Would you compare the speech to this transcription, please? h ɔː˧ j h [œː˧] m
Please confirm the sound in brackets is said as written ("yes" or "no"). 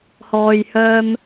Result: yes